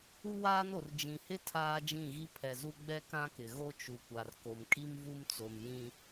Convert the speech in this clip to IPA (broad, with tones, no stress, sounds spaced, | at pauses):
u˦ w aː˦ n o˨ r d͡ʒ ĩ˨ h ɪ˦ tʰ aː˦ d͡ʒ ĩ˦˨ ɣ i˦ pʰ ɛ˨ z u˦ ɡ͡b ɛ˦ k ã˦ k ɪ˨ ɣ o˦ t͡ʃ u˨ kʷ a˨ r k o˨ m kʼ i˦ m v u˦ m t͡s o˨ m j ĩ˦